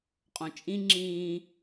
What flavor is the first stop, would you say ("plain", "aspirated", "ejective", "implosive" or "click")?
ejective